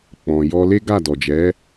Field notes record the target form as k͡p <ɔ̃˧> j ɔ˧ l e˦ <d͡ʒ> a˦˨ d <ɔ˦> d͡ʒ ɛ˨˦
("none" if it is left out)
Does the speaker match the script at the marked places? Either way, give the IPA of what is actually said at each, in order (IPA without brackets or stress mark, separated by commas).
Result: ɔ̃˨, ɡ, ɔ˨